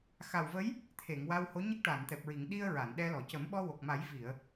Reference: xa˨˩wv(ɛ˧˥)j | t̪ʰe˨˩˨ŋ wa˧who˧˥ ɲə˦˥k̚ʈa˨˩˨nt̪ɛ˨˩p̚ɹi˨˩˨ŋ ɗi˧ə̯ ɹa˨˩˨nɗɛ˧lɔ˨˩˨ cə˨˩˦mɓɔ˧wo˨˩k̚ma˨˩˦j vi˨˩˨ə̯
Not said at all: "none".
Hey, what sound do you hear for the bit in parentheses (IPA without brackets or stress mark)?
ə˧˥